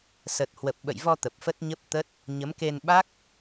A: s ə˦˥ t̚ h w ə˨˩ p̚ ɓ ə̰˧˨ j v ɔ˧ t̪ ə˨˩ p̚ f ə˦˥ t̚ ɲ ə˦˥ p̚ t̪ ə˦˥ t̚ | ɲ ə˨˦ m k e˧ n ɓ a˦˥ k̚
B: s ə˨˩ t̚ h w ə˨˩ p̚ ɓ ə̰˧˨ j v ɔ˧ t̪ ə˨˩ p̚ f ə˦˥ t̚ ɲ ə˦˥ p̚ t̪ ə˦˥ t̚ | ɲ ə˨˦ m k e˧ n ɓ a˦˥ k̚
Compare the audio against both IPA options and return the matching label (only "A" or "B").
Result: B